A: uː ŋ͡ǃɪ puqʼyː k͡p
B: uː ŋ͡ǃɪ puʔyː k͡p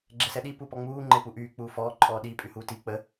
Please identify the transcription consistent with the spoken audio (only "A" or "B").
B